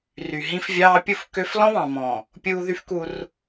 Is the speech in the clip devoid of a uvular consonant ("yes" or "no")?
yes